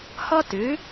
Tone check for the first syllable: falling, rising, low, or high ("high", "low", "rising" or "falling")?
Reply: high